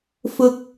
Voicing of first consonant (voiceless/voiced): voiceless